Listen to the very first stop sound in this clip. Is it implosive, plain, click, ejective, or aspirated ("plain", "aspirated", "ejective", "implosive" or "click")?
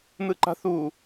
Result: click